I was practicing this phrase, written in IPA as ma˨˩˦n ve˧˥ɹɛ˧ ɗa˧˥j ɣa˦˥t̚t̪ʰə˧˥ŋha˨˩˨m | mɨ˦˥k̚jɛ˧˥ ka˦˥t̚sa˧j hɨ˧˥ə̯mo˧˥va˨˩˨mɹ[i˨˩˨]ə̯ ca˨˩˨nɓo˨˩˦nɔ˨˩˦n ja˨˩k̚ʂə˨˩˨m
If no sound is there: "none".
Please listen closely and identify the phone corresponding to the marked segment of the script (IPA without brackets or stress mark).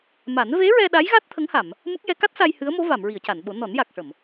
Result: i˨˩˨